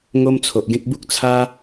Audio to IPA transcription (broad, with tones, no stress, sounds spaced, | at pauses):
ŋ o˦ m t͡sʰ o˨ ʔ ɡ ẽ˦ k̚ b u˦ k̚ t͡sʰ a˦